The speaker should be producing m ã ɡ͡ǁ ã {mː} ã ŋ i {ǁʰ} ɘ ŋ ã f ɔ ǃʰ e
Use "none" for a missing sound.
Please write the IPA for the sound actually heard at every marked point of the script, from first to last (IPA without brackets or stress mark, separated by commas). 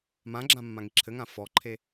mː, ǁʰ